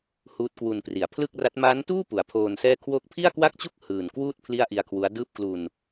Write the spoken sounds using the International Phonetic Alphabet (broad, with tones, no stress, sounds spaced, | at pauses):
h uː˦˥ t̚ k w u˧ n p r i˩˦ a̯ pʰ l ɯ˥˩ k̚ r a˦˥ t̚ m aː˦˥ n t uː˥˩ p u˩˦ a̯ pʰ oː˧ n s ɛː˥˩ kʰ w oː˦˥ k̚ pʰ i˥˩ a̯ k w a˥˩ k̚ t͡ɕ u˥˩ k̚ h ɯː˨˩ n k w uː˥˩ t̚ pʰ l i˥˩ a̯ ʔ i˧ a̯ kʰ w u˦˥ a̯ d ɯː˥˩ p̚ k l u˧ n